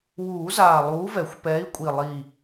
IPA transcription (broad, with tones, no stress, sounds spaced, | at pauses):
w uː˨˩˦ z aː˨˩ lˠ uː˨˥ v ɛ˨˩˦ xʷ p ɛː˨˥ i̯ kʷʼ i˨˩ lˠ iː˨˩